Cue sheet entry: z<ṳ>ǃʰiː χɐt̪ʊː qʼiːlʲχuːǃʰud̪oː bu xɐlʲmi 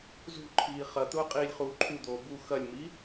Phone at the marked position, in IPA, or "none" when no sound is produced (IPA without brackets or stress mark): ṳ